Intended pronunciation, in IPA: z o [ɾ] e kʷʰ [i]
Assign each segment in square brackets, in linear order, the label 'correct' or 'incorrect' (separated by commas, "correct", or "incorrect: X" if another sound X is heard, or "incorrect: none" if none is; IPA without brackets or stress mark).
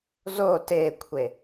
incorrect: t, incorrect: e